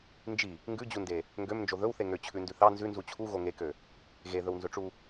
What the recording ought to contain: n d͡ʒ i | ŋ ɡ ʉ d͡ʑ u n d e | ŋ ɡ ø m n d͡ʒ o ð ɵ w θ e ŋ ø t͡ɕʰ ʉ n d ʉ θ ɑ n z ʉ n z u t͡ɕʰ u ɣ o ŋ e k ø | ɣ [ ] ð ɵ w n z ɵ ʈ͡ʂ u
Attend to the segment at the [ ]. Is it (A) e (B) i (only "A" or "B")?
A